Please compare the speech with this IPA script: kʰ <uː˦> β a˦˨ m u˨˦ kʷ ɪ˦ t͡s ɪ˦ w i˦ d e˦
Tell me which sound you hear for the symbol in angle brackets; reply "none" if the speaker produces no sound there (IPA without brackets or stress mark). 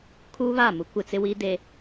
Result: uː˦